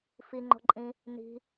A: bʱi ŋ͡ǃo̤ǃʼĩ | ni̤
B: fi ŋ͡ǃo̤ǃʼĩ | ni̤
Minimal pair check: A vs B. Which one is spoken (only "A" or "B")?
B